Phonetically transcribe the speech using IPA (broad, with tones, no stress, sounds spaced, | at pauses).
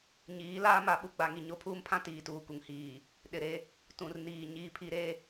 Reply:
ɲ iː˨˦ l aː˦ m a˨˦ ɓ u˨ ɡ͡b a˨ ŋ i˨ ɲ o˦ pʰ uː˦ m pʰ ã˦ t iː˨ t uː˨ k u˨ ŋ h iː˨ | ɗ ɪ˨ ɾ e˦ | t ũ˨ r n iː˨ ɲ iː˦ pʰ i˦ ɾ e˦